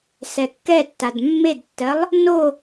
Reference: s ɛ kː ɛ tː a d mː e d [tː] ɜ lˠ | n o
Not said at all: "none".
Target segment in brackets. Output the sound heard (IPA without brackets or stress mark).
tː